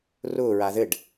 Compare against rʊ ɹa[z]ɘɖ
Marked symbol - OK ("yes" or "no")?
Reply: no